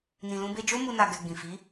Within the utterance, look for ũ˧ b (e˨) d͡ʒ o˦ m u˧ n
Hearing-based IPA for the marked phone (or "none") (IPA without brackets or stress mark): e˧